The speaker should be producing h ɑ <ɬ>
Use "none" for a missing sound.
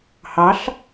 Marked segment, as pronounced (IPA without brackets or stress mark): ɬ